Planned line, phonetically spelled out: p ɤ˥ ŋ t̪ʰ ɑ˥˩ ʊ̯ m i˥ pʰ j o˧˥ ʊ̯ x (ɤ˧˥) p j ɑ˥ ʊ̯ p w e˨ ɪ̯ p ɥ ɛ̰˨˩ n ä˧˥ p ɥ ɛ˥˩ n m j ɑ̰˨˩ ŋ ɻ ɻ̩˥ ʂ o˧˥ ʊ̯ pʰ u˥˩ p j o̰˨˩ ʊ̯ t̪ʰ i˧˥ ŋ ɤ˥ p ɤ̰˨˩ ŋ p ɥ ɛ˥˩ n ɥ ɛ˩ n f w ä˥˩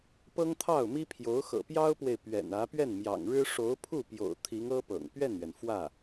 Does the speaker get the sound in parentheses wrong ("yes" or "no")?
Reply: yes